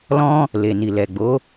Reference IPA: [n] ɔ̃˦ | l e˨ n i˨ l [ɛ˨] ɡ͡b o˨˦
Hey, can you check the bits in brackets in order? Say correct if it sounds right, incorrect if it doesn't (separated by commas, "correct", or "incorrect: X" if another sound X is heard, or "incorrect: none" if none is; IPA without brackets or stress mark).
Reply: incorrect: l, correct